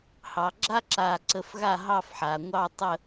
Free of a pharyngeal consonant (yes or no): no